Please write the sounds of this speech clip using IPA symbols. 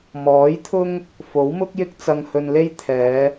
mɔː˨˥jt̪ʰʊ˥ŋ | fo˨˥wmʊ˥k̚jɪ˥k̚ t͡sɐ˧ŋhɵ˧nle˥j t̪ʰɛː˨˧

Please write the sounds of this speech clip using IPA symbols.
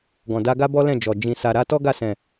ɡɔ̃˨da˧ɡa˦ bɔ˦lɛ̃˦˨d͡ʒɔ˨ d͡ʒĩ˨sa˨ɾa˧ tɔ˦ɡa˦˨sɛ̃˨

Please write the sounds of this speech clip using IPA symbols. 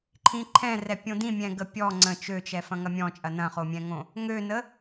ǃʰĩǃʰɛ̃rɛ pʲõdĩ mʲɛ̃ɡəpʲɔ ŋ͡ǀə̃ t͡ʃøt͡ʃɛ fɐ̃ŋɐmʲɔ̃t͡ʃʼɐ nɐ̃χomʲɛ̃ŋõ | ŋønə

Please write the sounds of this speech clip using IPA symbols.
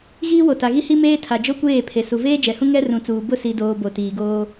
ɣiː˦wo˨ta˨ɣi˦ hi˦meː˦tʰa˨ d͡ʒo˦kʷeː˦˨pʰe˨ su˨veː˦d͡ʒɛ˨hũ˦ ŋɛ˦rũ˨t͡suː˨ bʊ˦si˨ doː˨ bo˨tiː˨ɡoː˦

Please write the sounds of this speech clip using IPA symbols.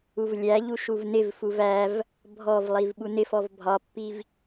uvlʲæʎu ʃuvnɪvfuv æv | bʱɔvlˠiv ɓunɪfɔv bʱɒpːiv

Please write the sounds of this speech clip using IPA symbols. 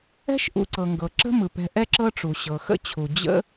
ɛ̤˦ʃʔṵ˨ǀɤ˩ŋɡɤ˩ ǁə̤˦ mɯ˩pɛ̤˨ ʔɛ˥ǁɤ˦ʈ͡ʂu˩ ɕɤ˩xə̰˥t͡ɕʰu˩ d͡ʑə̰˦

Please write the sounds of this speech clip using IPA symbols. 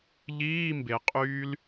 ʎiː˧˥˧ mbe˩qʼyː˦˥l

